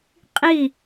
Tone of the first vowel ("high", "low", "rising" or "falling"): falling